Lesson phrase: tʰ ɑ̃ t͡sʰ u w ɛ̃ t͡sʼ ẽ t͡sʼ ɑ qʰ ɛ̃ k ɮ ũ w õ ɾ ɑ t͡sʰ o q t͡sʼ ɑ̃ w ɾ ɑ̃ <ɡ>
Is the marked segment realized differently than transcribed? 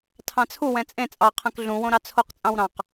yes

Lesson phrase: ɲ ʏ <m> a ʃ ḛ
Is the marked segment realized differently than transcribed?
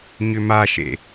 no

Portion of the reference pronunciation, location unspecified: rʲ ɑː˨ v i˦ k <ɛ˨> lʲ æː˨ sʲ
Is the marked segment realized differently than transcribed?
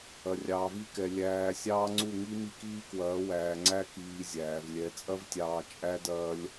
no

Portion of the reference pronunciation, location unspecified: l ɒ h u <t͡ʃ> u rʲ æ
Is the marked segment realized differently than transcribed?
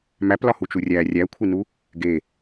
no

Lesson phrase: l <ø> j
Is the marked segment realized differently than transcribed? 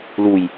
yes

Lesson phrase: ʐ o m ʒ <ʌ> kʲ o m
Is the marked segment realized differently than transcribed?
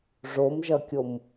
no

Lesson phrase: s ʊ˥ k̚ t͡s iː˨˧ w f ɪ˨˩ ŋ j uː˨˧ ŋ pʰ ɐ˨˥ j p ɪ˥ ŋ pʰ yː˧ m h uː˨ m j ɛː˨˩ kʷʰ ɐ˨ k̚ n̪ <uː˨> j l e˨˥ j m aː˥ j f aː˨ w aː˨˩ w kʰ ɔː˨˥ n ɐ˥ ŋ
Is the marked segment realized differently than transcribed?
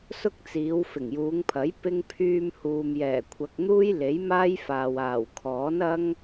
yes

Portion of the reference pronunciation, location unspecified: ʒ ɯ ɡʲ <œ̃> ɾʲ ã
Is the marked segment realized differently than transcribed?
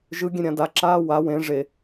yes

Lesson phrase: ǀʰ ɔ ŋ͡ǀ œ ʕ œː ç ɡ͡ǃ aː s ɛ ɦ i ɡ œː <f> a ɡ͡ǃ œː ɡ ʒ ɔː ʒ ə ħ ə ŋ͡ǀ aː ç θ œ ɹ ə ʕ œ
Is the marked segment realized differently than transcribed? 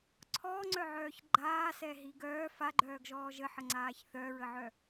no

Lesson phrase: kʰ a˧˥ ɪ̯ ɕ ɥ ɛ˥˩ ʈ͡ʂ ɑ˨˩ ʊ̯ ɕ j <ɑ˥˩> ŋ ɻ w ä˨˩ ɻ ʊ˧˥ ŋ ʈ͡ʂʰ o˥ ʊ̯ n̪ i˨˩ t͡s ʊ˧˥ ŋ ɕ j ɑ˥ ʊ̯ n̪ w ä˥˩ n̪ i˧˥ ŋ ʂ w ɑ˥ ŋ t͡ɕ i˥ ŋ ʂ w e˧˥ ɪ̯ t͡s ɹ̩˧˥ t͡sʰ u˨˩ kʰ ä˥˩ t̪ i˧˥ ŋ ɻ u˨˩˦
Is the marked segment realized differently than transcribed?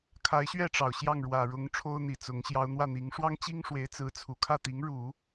no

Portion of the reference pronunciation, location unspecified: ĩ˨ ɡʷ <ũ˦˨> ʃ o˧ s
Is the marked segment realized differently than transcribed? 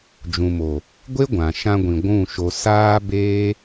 no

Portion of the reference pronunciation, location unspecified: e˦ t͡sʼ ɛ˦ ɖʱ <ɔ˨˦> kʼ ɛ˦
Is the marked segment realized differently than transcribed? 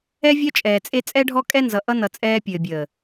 yes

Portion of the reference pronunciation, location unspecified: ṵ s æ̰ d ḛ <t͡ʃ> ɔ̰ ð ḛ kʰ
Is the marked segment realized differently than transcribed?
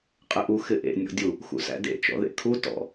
no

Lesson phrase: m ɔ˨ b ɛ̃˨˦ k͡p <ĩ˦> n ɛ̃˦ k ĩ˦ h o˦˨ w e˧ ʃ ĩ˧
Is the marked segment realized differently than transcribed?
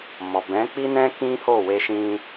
yes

